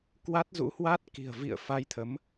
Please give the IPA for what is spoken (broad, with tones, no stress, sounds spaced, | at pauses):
k w a˦˥ t̚ z ṵ˧˥ h w a˦˥ t̚ k i̤˨˩ ə̯ v ḭ˧˨ ə̯ f a˧ j t̪ʰ ə˨˦ m